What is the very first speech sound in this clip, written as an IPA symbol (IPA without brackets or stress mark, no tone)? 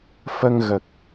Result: f